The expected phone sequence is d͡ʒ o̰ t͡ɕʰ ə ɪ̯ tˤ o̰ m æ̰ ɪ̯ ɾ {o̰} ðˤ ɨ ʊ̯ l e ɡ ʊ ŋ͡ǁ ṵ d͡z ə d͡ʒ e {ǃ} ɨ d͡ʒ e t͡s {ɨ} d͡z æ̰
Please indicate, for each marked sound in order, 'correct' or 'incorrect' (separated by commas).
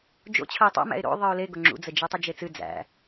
correct, incorrect, correct